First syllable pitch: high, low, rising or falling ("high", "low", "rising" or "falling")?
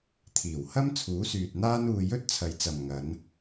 low